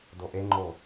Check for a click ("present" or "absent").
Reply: present